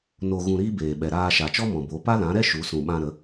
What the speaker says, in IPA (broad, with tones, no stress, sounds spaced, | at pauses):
n o˧ ɣ ũ˧ ɾ iː˦ b eː˨ ɓ ɛ˨ ɾ aː˧ ʃ a˨ t͡ʃ ɔ˦ m ɔ̃˨ b o˨˦ p a˦ l ã˨˦ ɾ ɛ˦ ʃ u˨˦ s ũ˨ ɓ ã˧ ɾ ə˨˦